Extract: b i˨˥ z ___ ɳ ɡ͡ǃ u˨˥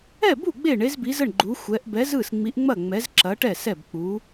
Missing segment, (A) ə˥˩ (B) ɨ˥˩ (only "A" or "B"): A